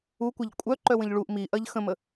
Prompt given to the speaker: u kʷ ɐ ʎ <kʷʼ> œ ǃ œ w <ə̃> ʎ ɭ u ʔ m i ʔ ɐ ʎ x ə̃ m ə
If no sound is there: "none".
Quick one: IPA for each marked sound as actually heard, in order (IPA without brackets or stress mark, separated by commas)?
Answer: kʷʼ, ə̃